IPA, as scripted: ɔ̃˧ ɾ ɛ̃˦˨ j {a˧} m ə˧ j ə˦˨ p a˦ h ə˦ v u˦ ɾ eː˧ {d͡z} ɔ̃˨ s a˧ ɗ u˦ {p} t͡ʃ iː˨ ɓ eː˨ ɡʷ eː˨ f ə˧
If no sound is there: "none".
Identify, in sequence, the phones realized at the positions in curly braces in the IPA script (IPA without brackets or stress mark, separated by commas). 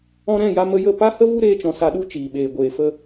a˧, t͡ʃ, none